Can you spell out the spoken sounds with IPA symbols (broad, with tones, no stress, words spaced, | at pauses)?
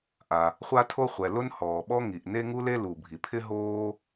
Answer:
ʔa˩ | χʷa˥tʰo˥χʷɛ˩ lʊ˥n hɔː˩ɓɔ˥ŋi˩ʔ ne˥ŋu˥le˥ lu˩bʱi˩pʰɪ˥ ɦoː˥